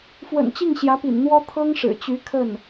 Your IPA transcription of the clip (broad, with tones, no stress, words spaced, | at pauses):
fwə̰˨˩n t͡ɕi˥˩ŋɕjä˧˥pḭ˨˩nn̪wɔ˥ t̪ʰɤ˥ŋʂɻ̩˨˩t͡ɕy˧˥ kʰə˥˩n